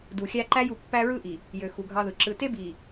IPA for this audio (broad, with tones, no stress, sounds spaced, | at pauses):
d u˨ xʲ æ˦ ǃ æ˦ j u˨ pː æ˦ ɹ ɯ˦ ʔ i˨ | j ø˨ x u˨ ɡʱ ɑ˦ ð ɯ˨ ǁ ɯ˨ t e˦ b i˨